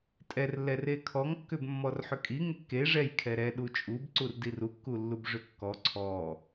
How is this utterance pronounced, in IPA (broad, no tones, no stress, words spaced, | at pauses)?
tʼɛrlːɛre kʰɔŋkːʏb mːɔrħʏkʼi ŋekːe ʐɛj kʰɛɾɛ ɗut͡ʃʼubǀur dirukːulːub ʐʏkːɔ ǀʰɔ